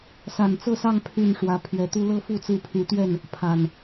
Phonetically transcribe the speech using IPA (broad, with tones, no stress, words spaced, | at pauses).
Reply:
sa˨˩nt͡sɤ˥˨sɑ˥˨ŋ pʰy˥˨nʂwä˨˦ pʰɥɛ˨˦t̪u˦ lɤ˦fu˥˨t͡sɹ̩˥˨ pʰy˨˦t̪ɥɛ˥˨n | pʰa˨˩n